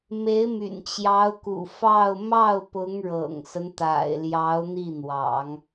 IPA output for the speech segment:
me˧˥ɪ̯my̰˨˩nt͡ɕjɑ˧˥ʊ̯kṵ˨˩ fɑ˥˧ʊ̯ mɑ˥˩ʊ̯pʊ˧˥ŋ ɻɤ̰˨˩ŋsə˦nt̪a̰˨˩ɪ̯ljɑ˧˥ʊ̯ n̪i˥˩n̪wɑ̰˨˩˦ŋ

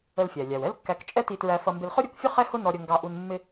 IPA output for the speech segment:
ə˧lfʲæ˩lʲæ˩w ɛ˥lkːæ˧k t͡ʃʼɛ˥ti˧tɹæ˧fʌ˧ mbɪ˧lχʊ˥ɾʲu˧kfʲʊ˥ χɛ˥hʊ˥nɔ˧ɾʲə˧ ŋɡɑ˧ʔu˧n mːɪ˥

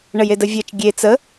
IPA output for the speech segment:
ɳəjedəvʲɜt͡ʃ ɡʲe t͡sə

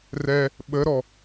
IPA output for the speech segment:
rɛ | ɓəɾɔ

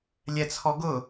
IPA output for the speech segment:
lʲɛt͡sʰɔɡʊ

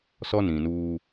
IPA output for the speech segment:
sɔ˦nĩ˨nuː˦

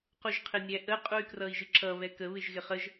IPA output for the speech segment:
quʒqʰɪnʲæʔə qʼuy̯krʌi̯ʒɪǁʌ βɛkə βɪʒɣɪχəʒ

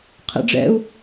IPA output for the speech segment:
qʰɛ̰ɖ͡ʐɛ̰u̯

